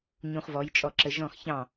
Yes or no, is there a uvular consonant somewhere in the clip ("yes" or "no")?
yes